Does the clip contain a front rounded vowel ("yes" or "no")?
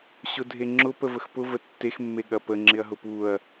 no